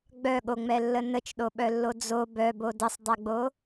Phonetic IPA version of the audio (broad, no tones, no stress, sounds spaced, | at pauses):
ɡ͡b œ ɠ o ŋ͡m ɛ lː ə n ə t͡ʃ ɗ o ɓ œ lː o d͡z o b œ b o d ə sˤ dˤ ɛ ɡ͡b o